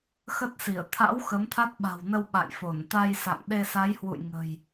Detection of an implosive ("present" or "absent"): present